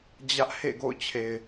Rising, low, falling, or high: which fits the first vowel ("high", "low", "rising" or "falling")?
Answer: high